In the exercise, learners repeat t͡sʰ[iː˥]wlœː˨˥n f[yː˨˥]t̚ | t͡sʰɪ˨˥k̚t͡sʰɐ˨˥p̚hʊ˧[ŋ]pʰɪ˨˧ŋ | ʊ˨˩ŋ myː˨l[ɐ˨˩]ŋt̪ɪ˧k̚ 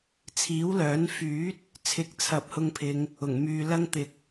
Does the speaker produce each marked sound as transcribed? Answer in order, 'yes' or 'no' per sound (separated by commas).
no, yes, yes, no